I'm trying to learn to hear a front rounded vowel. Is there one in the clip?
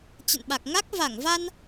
no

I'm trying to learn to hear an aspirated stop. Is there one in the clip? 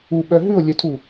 yes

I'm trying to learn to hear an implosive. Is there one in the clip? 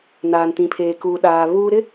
yes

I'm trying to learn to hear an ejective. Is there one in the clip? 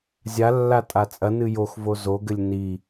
yes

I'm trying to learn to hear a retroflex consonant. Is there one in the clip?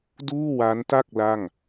no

